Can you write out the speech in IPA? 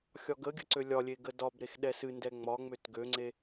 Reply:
xʲɒɡəɡʲə ǀølʲɒlʲe ɡədɒbɾex ɗɛsɨndɛ ŋ͡mɒŋ͡møt ɡøŋ͡ǀe

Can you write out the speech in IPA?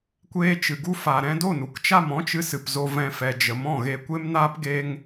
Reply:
kʷeː˧t͡ʃɨ˨ɡu˧ fa˨ ɾɛ̃˧do˦˨nu˨kt͡ʃa˦˨m ɔ̃˦t͡ʃɨ˧ sɨ˨pzo˧vɛ̃˧fɛ˨ d͡ʒə˨mɔ̃˦˨ɣe˧ kʷe˦mnaː˦p ɡe˧ŋ

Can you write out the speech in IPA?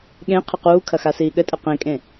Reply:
ɠẽ qʰɨquːkʰɐ xasiːɠɘtʼɘ qẽkʼẽ

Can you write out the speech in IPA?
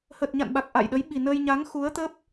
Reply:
hə˨˩t̚ɲa̰˧˨nɓa˨˩k̚ ʔa̰˧˨jɗə˨˦j ɓi˨˩nə˧j ɲa˨˦ŋxu˨˦ə̯t̪ə˦˥p̚

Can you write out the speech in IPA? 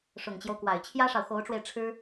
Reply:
ʂʊ˨˩ŋt͡ɕjo˦ʊ̯ kwa˨˩ɪ̯t͡ɕʰjä˥ʂɑ˨ʊ̯ xo˧˥ʊ̯ʈ͡ʂwe˧ɪ̯ ʈ͡ʂʰɻ̩˥

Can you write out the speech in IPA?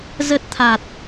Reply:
zə˦˥t̚t̪ʰa˨˩t̚

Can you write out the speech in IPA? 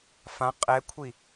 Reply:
fã qʼɛkʷʰi

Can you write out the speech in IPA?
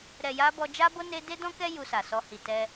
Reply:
ɾɛ˨ja˧ bɔ˧d͡ʒa˦bo˦ ne˧ de˦dɔ̃˦kɛ˦ ju˧sa˨ sɔ˧hi˨ tɛ˧

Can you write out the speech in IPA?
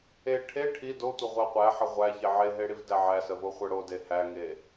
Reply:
e ʈʰe ʈʰi dotʷəʁʷæ qʷæħə ʁʷæçe ʕeɦeɽivdæ ʕæsəvo χʷə ɽode hæŋe

